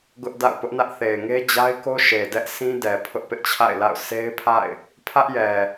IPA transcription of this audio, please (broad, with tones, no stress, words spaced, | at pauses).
ɡʊ˦ʔ da̰˦˨ʊ̯pʊ˦ʔnä˦ʔ θe˨ɪ̯ŋe˦d͡ʑa˦ɪ̯ko˦ ʃe˨dɛ˦ʔ sĩ˦dɛ˨ pʰʊ˦ʔpɪ˦ʔt͡ɕʰa̰˦˨ɪ̯la̰˦˨ʊ̯ se˦ɪ̯pʰa̰˦˨ɪ̯ | pʰä˦ʔjɛ˨